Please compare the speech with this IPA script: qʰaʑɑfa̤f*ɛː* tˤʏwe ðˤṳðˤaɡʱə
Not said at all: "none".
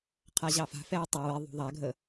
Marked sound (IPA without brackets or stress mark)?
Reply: ɛː